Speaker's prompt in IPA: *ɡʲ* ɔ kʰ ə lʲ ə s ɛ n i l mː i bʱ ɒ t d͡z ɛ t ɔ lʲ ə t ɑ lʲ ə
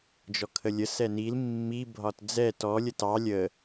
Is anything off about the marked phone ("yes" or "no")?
yes